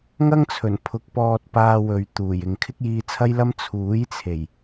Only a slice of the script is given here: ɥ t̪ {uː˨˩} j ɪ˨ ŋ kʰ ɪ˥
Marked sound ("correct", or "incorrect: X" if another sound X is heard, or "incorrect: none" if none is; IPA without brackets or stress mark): correct